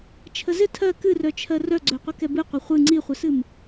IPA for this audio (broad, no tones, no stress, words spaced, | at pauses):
t͡ʃʰəzɪ tʰɜ kɨrœt͡ʃʰɜ rœɡ͡ǀœ qʷəkɛbɨ qʷɪχʷɨ ŋ͡ǀiχʷɪsɨm